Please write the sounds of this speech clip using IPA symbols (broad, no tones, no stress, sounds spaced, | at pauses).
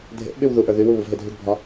dʱ ḛ ʔ ɓ y w ð u ʔ ə˞ ð y w u β u v ɦ e dʱ y ɡ bʱ ɒ